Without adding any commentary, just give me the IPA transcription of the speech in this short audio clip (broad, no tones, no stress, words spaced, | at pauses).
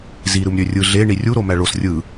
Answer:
zi ɾɯmɾʲørʲɯ ɮe ɳirʲu ɾomæɭos rʲɯ